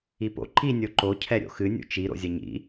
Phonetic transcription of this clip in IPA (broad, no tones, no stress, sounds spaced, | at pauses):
i p o̰ ǃ i nʲ o ǃ o cʰ ɛ ɾʲ o̰ x ɨ nʲ ṵ t͡ʃ i ɾ o̰ zʲ ɐ ɲ ḭ